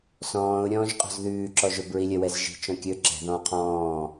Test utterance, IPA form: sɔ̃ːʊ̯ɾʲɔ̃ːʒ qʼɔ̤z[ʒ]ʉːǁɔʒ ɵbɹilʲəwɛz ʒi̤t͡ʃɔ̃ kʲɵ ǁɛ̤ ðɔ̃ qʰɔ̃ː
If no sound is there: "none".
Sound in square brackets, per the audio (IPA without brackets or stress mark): ð